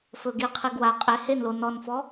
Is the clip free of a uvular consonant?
no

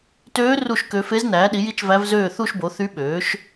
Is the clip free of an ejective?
yes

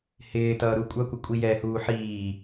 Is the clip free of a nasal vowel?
yes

